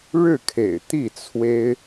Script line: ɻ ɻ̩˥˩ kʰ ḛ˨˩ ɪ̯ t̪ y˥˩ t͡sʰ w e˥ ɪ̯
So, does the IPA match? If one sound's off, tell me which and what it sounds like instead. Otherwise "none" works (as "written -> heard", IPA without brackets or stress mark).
y˥˩ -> i˥˩